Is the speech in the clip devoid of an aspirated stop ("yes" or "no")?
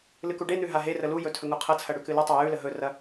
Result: no